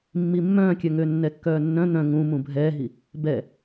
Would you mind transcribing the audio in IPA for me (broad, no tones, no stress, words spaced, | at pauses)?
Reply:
mːimːœ̃kʲœ ŋønːɛkːœːnːœ̃ n̪œ̃ ŋũmũ bʱɛːɦi | bɛ